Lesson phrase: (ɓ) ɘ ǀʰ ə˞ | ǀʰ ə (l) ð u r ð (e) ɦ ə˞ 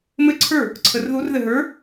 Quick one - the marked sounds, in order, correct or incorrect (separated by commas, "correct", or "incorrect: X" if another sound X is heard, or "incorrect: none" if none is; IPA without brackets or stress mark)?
incorrect: m, incorrect: r, incorrect: ɘ